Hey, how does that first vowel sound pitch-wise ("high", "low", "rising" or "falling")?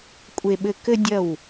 low